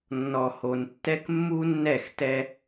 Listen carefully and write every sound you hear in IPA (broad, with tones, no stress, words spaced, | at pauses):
nːɔ˨ho˨ntːɛ˦k mːu˦nːɛ˦˨xtɛ˦